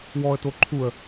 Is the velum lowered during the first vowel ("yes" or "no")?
no